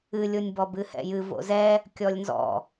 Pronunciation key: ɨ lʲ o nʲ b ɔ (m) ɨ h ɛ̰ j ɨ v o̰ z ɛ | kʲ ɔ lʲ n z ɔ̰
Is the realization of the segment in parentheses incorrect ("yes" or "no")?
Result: yes